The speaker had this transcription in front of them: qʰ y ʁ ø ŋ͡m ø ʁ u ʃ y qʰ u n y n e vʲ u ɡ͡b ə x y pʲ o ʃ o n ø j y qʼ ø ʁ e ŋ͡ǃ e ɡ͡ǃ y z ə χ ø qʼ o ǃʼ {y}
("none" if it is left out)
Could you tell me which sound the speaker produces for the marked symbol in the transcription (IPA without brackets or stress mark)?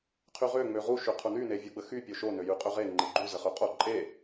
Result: e